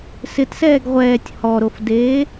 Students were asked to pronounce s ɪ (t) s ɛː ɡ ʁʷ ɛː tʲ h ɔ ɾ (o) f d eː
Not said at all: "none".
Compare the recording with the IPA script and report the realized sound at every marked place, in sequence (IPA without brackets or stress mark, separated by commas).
t, o